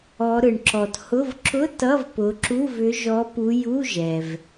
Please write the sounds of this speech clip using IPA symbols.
ɔ˨˦ɾɯ˨ɳ ǁɔ˨thʊ˧˥˧v ǁʊ˧˥˧ tʌ˧˥˧vpʊ˨˦ǁu˧˥˧v ʏ˨˦ʒɔ˨˦pu˨˦ ju˧˥˧ʒɛ˨v

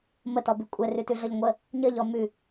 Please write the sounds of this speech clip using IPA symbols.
mətɔbʉ kʷʼɛrʉtʉɮʌʎ ŋʷə | ɲəʎɔ mʉ

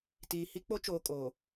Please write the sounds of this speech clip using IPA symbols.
tiː˨ hi˦k͡po˦t͡ʃoː˨ kʼoː˨

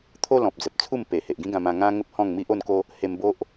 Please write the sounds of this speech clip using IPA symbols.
t̪ʰo˦lɔ̃˨p̚d͡zə˨p̚t͡sʰu˥˧m pe˨˩he˨ʔɡĩ˦ ɡã˧mã˧ ŋã˦ŋə˦p̚hɔ̃˥˧ŋmi˦ʔ o˥˧nko˦ | he˧mbo˦ʔ

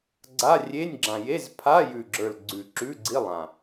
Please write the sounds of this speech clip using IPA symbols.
ɡ͡ǀa˧˥˧rʲe˧˥˧nʲɡ͡ǁã˨˩ je˧˥˧zpʰa˧˥˧jʉ˨˩ɡ͡ǁə˞˨˩l ɡ͡ǀʉ˨˩ ǁʉ˧˥˧ɡ͡ǀi˧˥˧lˠã˨˩

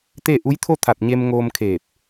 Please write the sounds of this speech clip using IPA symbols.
t̪e˥˨ ʔu˧˥jt̪ʰo˥˨ t̪ʰa˧˩t̚ɲe˧mŋoː˧mkʰeː˧˩p̚

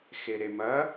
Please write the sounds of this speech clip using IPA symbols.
xeɾemɐ

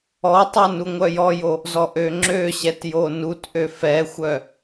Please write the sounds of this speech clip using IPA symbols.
ɔtˤœ nuŋʷœjɔjo | zɔʔøŋ͡ǁøɕɛt jonutʔø fɛxʷœ

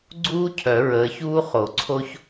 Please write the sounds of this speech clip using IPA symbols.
ɡ͡ǀuː˥cʰœ˨˩˦ ɹəː˨˦çuː˥ χo˨˩˦ǀʰo˥ç

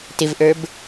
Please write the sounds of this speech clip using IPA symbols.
tɪvʔə˞b

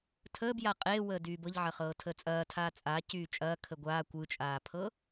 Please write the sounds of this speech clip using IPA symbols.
tʰəːbja qʼe wəːdyːbɤʎ ʕɐχɤːtʰəːt͡sʼɐː tʰaːt͡sʼaː cyːt͡ʃʼɐː kʰəɡʷaː kʷɯt͡ʃʼaːpʰɤ

